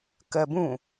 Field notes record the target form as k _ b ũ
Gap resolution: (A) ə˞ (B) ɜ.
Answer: B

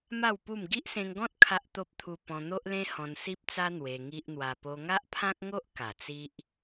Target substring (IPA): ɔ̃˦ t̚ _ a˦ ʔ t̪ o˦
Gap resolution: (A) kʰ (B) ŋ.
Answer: A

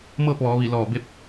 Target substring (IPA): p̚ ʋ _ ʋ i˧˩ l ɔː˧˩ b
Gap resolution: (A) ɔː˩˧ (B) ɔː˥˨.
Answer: A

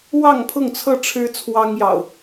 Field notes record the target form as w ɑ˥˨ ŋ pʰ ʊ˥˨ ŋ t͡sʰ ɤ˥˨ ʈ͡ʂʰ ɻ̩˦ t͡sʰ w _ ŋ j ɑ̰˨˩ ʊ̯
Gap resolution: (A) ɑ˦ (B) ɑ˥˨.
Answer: A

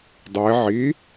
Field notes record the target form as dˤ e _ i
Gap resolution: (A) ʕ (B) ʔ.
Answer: A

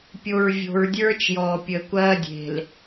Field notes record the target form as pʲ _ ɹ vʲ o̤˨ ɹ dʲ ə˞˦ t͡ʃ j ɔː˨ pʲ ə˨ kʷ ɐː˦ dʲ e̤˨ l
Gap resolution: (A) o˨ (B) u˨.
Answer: A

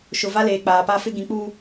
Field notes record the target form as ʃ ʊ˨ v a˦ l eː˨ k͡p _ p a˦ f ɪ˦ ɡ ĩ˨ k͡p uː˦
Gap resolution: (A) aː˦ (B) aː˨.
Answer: B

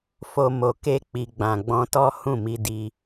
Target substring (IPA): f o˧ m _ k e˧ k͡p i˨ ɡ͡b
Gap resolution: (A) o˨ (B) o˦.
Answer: A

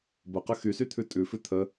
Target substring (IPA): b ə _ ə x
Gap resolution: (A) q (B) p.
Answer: A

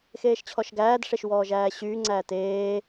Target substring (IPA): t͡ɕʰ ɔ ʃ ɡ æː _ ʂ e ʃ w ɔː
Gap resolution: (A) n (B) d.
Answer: B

